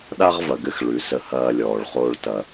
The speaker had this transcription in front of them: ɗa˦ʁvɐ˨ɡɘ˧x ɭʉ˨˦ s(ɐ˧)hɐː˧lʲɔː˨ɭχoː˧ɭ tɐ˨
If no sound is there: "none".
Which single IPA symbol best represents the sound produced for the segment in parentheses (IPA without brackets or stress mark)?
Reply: ə˧